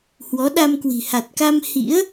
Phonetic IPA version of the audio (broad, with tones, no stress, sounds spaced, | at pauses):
h w ɔ˨˦ ɗ a˧ m k w i̤˨˩ h a˨˩ t̚ k a˧ m h ḭ˧˥ ə̯